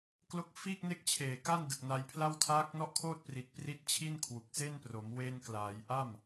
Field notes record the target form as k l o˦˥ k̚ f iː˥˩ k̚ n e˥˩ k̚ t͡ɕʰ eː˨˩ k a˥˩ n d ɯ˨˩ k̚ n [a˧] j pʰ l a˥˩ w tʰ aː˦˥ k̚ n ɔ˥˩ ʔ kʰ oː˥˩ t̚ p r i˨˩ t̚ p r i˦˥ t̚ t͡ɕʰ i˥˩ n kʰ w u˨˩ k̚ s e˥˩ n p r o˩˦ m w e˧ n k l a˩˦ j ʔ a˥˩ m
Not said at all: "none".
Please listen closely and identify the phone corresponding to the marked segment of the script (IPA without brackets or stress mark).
a˧